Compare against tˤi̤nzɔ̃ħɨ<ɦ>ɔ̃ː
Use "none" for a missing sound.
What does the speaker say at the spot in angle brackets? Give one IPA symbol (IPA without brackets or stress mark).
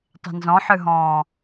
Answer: ɦ